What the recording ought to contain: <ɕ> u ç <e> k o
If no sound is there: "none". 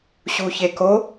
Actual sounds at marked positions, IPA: ɕ, e

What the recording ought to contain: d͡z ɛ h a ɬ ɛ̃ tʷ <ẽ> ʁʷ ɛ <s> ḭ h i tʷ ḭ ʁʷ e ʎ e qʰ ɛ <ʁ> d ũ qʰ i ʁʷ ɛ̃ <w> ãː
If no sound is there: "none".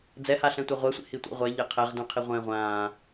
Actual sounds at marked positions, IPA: e, sʷ, ʁ, ʁʷ

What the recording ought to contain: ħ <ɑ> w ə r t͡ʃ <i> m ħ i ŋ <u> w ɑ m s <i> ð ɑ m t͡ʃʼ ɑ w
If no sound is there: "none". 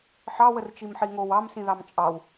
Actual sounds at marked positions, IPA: ɑ, i, o, ĩ

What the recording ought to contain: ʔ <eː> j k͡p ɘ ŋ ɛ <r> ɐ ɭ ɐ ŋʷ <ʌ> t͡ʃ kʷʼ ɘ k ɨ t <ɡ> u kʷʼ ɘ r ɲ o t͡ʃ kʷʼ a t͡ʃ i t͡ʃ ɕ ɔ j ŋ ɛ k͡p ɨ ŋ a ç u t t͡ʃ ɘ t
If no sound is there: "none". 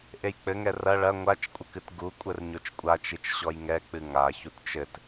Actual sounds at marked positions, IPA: e, r, a, ɡ

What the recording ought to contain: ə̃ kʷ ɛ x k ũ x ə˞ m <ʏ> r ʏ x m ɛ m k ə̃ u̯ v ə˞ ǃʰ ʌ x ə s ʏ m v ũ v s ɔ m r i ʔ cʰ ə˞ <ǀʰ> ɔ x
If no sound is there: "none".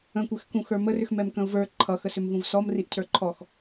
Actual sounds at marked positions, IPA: ə, ǃʰ

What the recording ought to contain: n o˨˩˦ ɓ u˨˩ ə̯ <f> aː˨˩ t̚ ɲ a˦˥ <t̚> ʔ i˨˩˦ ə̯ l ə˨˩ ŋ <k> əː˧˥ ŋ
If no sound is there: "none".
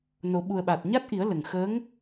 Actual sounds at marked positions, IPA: ɓ, t̚, x

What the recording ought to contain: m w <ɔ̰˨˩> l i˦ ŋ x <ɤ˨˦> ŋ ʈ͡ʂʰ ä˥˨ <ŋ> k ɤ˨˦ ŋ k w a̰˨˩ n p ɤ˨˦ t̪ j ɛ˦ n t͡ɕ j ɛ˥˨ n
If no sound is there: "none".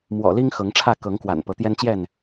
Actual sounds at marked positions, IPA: ɔ̰˨˩, ɤ˨˦, none

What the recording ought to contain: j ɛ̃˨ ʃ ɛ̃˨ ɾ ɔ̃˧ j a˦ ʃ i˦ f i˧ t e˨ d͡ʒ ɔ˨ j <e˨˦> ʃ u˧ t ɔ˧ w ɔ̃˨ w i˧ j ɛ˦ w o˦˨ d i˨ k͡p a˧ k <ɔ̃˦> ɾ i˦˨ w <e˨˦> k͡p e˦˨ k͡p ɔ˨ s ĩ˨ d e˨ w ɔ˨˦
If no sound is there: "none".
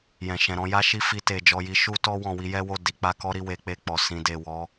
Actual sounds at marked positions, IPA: i˨˦, ɔ˦, e˨˦

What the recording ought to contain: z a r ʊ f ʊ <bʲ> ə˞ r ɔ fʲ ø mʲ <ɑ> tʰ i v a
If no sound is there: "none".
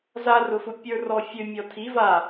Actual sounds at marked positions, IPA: pʲ, ɔ

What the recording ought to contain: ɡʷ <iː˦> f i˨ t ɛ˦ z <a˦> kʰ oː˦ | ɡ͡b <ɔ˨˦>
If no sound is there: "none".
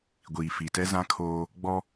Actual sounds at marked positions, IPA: iː˨, ã˦, ɔ˦

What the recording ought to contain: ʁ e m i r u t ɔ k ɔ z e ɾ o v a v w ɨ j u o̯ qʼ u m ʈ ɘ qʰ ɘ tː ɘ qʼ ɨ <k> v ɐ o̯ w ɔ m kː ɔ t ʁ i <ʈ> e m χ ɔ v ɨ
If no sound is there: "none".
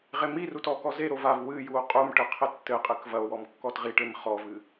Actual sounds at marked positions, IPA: k, ʈ

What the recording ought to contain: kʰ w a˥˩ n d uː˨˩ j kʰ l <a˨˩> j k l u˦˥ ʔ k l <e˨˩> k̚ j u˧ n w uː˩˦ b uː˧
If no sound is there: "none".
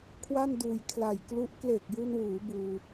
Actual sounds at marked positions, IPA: a˨˩, e˨˩

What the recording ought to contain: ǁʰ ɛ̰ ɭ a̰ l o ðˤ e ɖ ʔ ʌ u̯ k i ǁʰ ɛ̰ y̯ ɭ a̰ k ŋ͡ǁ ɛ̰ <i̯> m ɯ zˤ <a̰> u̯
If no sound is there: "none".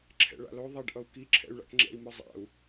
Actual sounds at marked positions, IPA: i̯, a̰

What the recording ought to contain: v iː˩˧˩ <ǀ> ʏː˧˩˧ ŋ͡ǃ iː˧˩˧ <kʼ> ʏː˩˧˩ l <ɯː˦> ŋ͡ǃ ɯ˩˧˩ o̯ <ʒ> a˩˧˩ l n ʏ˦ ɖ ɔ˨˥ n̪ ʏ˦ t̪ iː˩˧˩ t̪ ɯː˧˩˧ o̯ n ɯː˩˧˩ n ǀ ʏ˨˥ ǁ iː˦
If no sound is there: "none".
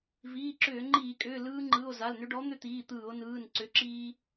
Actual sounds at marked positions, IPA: ǁ, kʼ, ɯː˦, z

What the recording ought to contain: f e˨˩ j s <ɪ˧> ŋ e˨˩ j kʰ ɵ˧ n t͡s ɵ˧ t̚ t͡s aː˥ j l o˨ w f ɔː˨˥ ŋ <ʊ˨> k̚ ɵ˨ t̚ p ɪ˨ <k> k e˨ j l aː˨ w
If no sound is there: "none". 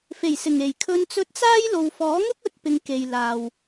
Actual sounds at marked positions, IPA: ɪ˨˩, ʊ˥, ŋ

